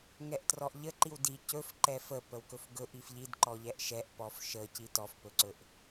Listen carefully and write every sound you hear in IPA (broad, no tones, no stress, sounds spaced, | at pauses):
ŋ ɛ ʔ t r ɔ ʔ ʎ ə ǃ i w d i c ɵ f ǃ ɛ f ə p ə w k ɵ f ɡ ɵ ʔ i f ʎ i d ǃ ɔ ʎ ɛ ʔ ʃ ɛ ʔ p ɔ f ʃ ə c i t ɔ f p ɵ ǀ ɵ ʔ